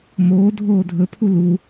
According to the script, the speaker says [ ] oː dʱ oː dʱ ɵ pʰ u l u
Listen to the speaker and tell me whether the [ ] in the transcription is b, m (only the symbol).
m